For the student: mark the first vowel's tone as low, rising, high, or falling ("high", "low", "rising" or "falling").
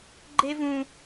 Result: high